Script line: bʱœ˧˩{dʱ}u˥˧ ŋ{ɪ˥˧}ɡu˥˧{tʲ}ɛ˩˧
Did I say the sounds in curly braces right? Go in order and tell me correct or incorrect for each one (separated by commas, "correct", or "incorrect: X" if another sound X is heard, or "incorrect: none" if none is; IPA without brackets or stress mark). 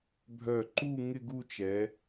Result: incorrect: ǃ, correct, incorrect: t͡ʃ